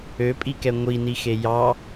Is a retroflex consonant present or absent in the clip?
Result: absent